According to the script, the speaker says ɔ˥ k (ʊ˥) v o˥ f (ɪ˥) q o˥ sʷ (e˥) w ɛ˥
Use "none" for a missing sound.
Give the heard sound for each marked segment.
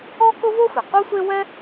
ʊ˥, ɪ˩, e˥

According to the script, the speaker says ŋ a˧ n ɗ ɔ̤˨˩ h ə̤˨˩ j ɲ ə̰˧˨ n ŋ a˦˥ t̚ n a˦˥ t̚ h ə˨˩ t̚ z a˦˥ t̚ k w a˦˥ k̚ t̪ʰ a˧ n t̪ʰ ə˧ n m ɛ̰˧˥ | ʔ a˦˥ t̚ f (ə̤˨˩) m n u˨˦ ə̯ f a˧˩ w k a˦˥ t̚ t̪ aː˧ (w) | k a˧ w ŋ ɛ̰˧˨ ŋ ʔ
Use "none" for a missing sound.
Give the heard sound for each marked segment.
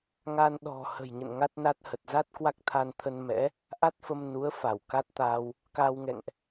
ə˧, w

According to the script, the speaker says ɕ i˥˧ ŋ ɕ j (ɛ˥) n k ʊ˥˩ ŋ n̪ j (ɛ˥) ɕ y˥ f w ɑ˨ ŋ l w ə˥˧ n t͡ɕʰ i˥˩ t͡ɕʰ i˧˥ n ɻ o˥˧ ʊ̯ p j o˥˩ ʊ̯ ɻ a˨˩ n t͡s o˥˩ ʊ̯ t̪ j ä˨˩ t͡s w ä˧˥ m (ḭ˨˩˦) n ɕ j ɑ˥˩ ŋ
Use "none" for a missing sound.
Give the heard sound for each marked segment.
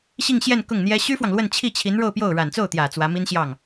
ɛ˥˧, ɛ˥, i˥

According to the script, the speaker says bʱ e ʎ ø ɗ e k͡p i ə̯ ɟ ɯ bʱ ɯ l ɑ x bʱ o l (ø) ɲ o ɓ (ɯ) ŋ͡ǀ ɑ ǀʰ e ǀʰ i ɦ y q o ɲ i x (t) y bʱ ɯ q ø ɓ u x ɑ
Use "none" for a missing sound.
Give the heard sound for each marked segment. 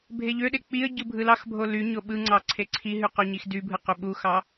y, ɯ, d

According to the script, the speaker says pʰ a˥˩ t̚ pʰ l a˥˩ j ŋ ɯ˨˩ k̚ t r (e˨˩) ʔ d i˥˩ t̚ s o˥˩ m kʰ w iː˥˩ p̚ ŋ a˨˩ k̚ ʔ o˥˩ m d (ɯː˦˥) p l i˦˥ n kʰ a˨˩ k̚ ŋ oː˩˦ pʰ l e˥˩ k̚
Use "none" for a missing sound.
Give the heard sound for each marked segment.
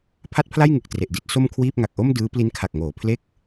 e˨˩, ɯː˦˥

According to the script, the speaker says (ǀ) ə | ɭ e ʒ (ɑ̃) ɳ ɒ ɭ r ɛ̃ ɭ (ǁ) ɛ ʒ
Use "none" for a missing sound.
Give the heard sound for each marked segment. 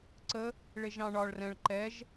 ǀ, ɑ̃, ǃ

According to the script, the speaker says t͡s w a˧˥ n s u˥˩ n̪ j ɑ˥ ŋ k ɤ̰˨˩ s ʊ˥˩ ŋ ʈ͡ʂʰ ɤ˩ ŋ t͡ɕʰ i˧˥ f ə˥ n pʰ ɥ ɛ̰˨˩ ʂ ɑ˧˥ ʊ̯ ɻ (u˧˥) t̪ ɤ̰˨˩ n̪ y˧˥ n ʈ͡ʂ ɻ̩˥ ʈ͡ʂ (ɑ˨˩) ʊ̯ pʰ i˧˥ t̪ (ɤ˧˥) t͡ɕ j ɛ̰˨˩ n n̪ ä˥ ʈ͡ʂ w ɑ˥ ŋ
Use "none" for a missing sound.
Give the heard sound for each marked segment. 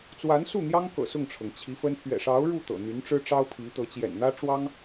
u˥˩, ɑ˥, ɤ˧˥

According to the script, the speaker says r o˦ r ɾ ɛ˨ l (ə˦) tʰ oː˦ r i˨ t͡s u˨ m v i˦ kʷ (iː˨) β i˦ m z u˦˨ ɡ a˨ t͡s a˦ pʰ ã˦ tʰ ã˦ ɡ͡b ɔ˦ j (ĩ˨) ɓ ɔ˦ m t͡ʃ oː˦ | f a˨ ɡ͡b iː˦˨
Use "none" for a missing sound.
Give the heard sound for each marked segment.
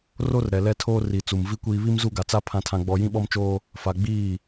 ɛ˦, iː˦, ĩ˦

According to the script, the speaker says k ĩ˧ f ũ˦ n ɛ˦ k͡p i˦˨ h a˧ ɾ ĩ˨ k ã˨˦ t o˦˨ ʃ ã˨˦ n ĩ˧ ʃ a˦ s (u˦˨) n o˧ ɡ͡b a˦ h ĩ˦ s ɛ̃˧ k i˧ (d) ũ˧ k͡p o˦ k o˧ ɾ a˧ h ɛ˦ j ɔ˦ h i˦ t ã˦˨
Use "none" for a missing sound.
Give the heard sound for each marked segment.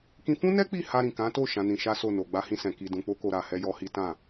o˦˨, d

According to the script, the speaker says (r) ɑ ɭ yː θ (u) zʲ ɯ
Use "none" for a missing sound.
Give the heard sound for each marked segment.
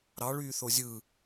ɾ, o

